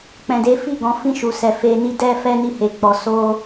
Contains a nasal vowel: yes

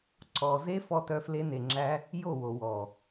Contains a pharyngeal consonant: no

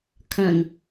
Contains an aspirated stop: yes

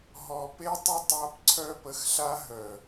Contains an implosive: no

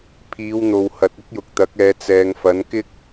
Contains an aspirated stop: yes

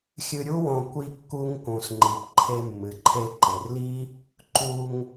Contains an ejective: no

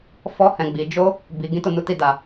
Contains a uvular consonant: no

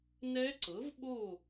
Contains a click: yes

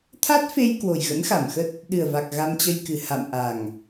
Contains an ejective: no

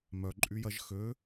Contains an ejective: yes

